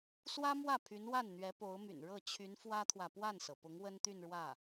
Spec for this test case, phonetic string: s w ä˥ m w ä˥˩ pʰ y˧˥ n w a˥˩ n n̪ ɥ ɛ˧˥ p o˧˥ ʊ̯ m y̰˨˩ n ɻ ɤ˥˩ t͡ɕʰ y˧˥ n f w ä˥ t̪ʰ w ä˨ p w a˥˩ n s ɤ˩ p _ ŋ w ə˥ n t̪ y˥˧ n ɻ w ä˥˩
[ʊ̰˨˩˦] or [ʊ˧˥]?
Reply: ʊ˧˥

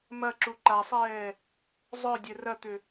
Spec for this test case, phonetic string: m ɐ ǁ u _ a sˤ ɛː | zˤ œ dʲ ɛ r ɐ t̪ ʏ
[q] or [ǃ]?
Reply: ǃ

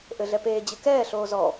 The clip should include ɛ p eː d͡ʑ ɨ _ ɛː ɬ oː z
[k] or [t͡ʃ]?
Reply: k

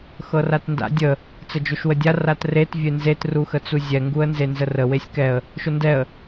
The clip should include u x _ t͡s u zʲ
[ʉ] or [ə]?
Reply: ə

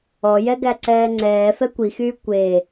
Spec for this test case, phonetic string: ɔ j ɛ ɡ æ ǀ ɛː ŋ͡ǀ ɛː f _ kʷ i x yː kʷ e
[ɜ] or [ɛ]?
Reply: ɛ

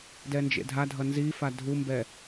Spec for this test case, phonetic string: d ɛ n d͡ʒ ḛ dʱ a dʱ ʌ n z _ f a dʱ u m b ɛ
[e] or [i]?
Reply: i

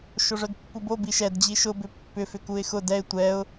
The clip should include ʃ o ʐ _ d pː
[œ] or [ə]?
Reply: œ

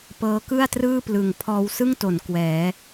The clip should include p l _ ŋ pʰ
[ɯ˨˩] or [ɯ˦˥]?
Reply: ɯ˨˩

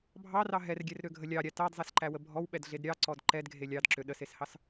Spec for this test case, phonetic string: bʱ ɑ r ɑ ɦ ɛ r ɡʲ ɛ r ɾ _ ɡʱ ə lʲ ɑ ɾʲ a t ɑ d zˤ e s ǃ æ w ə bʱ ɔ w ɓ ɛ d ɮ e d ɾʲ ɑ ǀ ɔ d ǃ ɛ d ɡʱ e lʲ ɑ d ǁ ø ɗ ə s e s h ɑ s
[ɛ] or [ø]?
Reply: ø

